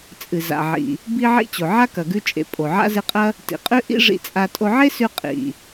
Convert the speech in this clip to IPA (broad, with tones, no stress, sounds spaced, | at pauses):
t͡sʼ ɨ˩ z a̰˩ ʕ ḭ˩ | b i˧ ʕ ḭ˧ t͡ɕ o˩ ʕ a˥ k ɐ˩ ɡ ʉ˧ t͡ʃʼ ḛ˩ pʼ o˩ ʕ a̰˥ z ɨ˧ qʼ ɐ˥ | t ḭ˩ qʼ ʉ˧ ʔ ḭ˥ ʐ ḭ˧ t͡sʼ a˧ tʼ o˧ ʕ e˥ s ʉ˧ qʼ ḭ˩